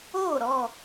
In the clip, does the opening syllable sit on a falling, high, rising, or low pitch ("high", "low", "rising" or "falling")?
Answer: falling